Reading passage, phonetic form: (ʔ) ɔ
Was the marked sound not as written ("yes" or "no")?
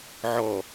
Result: yes